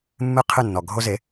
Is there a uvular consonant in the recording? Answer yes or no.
yes